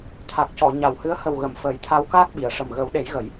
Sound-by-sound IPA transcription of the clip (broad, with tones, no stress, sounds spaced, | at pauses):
t̪ʰ a˨˩ k̚ c ɔ˨˩˨ ɲ a˨˩ w h ɨ˧˥ ə̯ h ə˨˩ w ɣ ə˨˩˨ m f əː˨˩˦ j t̪ʰ a˧˥ w k aː˦˥ k̚ ɓ i˨˩˨ ə̯ ʂ ə˨˩ m ɣ ə˨˩˦ w ɗ e˨˩˦ j ɣ ə˨˩˦ j